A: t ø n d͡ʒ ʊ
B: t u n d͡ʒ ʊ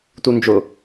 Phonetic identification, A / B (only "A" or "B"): B